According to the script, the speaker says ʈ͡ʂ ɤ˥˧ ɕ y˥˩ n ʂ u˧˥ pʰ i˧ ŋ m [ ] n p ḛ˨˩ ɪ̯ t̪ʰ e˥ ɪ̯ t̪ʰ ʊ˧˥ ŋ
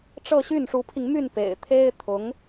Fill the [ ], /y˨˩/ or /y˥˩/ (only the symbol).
y˥˩